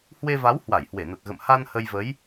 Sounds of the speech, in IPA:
h w e˧ v a˨˦ w h w a˧˩ j h w e˧˩ n ə˨˩ t̚ ɣ ə̰˧˨ m h a˧ n h ə˧ j v ə˨˦ j

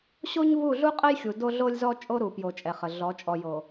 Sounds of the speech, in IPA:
ɕ o˦ ɲ v u˦˨ ɮ u˦ qʼ ə˦ j xʲ u˨ d o˦ ɮ o˦ lʲ z ɔ˦ t͡ʃʼ o˦ ɾ u˨ p j o˨ t͡ʃʼ ɛ˨ χ ə˨ ɮ ɔ˨˦ t͡ʃʼ ɔ˨ j o˨

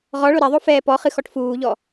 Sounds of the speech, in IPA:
ʁ ɔ ɭ o ɾ ɛ ðˤ o f ɛː p ɔ χ ɨ x ɔ ʈ f uː ʎ ɔ

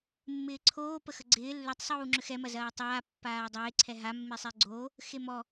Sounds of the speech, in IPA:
mː ɪː ǀʰ oː p ə x ə ɡ͡ǀ ɪː lː ʏ tˤ sˤ uː ŋ͡ǁ ʏ x ɛ m ɐ z ɐː tˤ aː pː aː dˤ ɪː ǀʰ ɛ ɦ a mː e sˤ e ɡ͡ǀ oː | x e m ɔ

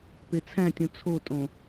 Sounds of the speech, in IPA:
p e t͡sʰ æ̃ tʲ ũ t͡sʰ o tʼ õ

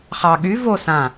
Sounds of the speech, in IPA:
χ ɑ ɠ y v o s ã

